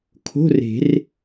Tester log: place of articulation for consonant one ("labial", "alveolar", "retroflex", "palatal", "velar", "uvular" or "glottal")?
velar